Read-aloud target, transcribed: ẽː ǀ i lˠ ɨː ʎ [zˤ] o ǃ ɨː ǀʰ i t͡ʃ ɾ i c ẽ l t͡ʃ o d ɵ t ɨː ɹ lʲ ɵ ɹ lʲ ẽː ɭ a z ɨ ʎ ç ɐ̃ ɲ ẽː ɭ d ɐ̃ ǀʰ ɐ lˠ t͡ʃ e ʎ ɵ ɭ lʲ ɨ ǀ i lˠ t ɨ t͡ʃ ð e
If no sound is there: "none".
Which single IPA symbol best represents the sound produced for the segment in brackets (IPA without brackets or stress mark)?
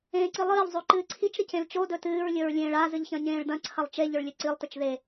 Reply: zˤ